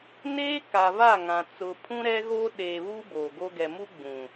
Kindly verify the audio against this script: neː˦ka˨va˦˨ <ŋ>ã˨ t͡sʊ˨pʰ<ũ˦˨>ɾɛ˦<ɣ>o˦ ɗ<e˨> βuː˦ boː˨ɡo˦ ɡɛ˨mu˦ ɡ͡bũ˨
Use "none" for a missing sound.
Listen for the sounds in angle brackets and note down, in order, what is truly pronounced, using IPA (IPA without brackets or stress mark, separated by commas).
ŋ, ũ˦, ɣ, eː˨